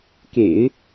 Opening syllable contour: low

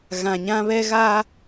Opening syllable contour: low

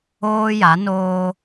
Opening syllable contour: high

